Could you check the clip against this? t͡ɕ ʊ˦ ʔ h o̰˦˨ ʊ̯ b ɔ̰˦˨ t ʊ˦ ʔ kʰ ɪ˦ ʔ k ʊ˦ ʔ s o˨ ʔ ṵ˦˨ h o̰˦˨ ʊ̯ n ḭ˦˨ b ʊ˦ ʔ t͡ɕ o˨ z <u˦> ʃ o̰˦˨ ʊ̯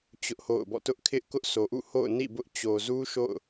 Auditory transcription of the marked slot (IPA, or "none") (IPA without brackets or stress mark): u˦